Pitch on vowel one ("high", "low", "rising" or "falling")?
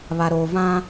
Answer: low